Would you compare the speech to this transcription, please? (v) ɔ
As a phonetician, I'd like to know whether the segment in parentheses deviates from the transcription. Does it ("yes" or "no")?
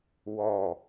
yes